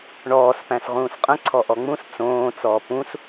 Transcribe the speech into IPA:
ɳ ɔː s p æ̃ s ʁ ũː s qʼ ə̃ ǀʰ ɔ ʔ ɔ ŋ͡m ũ s t͡s õː t͡s ɔː p ũ s

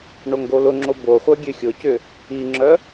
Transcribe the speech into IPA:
ɳ o ŋ ɡ o l ʊ ŋ͡ǁ o b o χʷ œ ɡʲ ø xʲ ʊ c ʏ | i ŋ͡ǁ œ

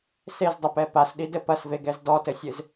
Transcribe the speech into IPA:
s e z dˤ ɨ p ɛ p a s ɗ i d ɘ p ɐ s v e ɡ ɛ z d ɔ t ɘ sʲ ɨ z

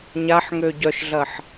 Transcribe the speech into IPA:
ɲ a ħ ŋ ø ɟ œ ʃ ɮ ɐ ħ

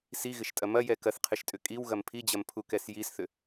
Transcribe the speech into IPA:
s i ɣ ɪ ʃ tʼ ɐ m ɐ j ɛ k ɐ θ qʰ ɪ ʃ tʼ ʏ kʼ i w ɣ ɐ m pʰ i d͡ʑ ɐ m pʰ u k ɛ s j i s θ ʏ

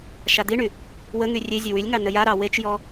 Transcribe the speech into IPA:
ʃ a d̪ i ɳ y | w ə ŋ y rʲ e zʲ ə w y lʲ ŋ ɑ n ə j a ɾ ɑ w e t͡ʃ j ɔ

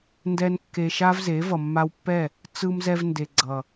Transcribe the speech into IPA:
n d ɛ˧ n kː e˧ ʃ a˦ v z e˨˦ v ʌ˨ mː a˧ w pː ɛ˦˨ | t͡s ɯ˧ m z ɛ˧ v n d e˨ ɡ͡ǀ ʌ˨

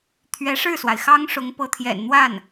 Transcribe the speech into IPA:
t̪ʰ ɥ ɛ˧˥ ʂ ɻ̩˥˩ s w a˩ ɪ̯ x ɑ˥ ŋ ʂ ʊ˧˥ ŋ p ɤ˧˥ t̪ʰ j ɛ̰˨˩ n n̪ w a˥˩ n

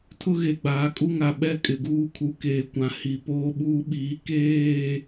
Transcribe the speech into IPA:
tʰ ʊ˦ ɣ e˨ ɡ͡b aː˨ kʼ u˦ ŋ a˨ ɓ ɛ˦ kʼ ɪ˨ ɡ uː˦ kʰ u˨ k eː˨ kʷ ã˨ h i˨ p oː˦ ɓ uː˦ ɓ iː˨˦ k eː˦˨

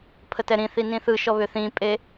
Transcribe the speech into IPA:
pʰ ə t ɛ ɾ ĩ θ i n ĩ θ ɯ ʃ ɔ β ʏ θ ĩ pʼ e

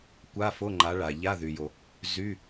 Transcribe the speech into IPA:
kʷ a˧˥˧ f o˧˥˧ ŋ͡ǃ a˨˦ ɭ a˩ ʎ a˧˥˧ ð y˩ j o˩ | z y˧˥˧

